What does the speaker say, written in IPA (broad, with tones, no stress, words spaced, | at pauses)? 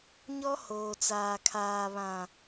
ɲɔ˦hoː˨t͡saː˨ kʰaː˨βã˨